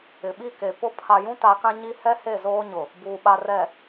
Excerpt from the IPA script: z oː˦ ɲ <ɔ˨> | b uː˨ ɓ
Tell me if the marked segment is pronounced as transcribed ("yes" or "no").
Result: no